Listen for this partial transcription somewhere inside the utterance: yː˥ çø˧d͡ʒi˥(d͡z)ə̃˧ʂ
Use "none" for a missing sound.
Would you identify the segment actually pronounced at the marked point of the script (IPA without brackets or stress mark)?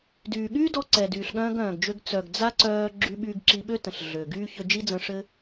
d͡z